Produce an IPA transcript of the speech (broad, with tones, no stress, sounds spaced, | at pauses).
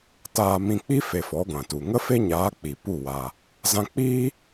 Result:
t aː˧ m ĩ˧ k͡p i˦ f e˧ f ɔ˨˦ ɡʷ ã˨ t u˨ ŋ ə˦ f e˦ ɲ aː˨˦ k͡p i˨ p u˦˨ w a˧ | z ã˧ k͡p iː˦